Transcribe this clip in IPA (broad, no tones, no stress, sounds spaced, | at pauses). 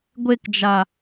ɡʷ e k d͡ʒ a